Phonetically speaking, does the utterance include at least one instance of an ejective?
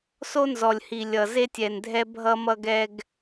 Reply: no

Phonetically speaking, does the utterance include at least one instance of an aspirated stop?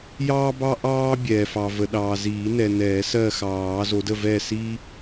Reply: no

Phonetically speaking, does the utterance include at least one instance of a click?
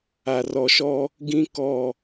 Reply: no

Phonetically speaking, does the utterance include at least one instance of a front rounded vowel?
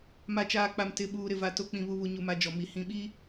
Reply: no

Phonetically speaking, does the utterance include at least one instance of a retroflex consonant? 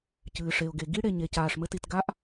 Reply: yes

